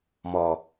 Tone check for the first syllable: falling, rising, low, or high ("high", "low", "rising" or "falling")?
low